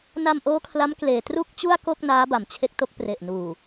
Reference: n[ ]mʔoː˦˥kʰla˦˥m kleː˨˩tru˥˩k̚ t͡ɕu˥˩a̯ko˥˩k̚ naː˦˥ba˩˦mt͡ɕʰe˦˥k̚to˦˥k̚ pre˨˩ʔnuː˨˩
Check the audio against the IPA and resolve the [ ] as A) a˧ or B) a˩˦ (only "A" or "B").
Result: A